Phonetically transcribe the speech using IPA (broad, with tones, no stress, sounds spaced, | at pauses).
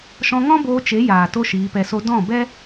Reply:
ʃ ɔ̃˧ ŋ ɔ̃˦ b oː˧ t͡ʃ e˨˦ j aː˨ t o˦ ʃ iː˨˦ p ɛ˧ s o˦ d ɔ̃˦˨ b ɛ˦